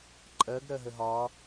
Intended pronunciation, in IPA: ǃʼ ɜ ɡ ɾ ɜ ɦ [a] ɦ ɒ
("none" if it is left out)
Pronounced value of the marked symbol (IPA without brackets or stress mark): ə